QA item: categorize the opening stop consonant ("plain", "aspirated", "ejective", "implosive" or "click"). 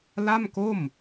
plain